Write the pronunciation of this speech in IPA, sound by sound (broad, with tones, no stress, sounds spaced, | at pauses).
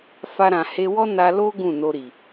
f a˧ ɾ ã˨ h e˧ w ɔ˦ n a˧ l o˦ ɡ ũ˦˨ n o˧ ɾ i˨